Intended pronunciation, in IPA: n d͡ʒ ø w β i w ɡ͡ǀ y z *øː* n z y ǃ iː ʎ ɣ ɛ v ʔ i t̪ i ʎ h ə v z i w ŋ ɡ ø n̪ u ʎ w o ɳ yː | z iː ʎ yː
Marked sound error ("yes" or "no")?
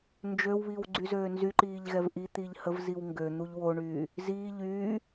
no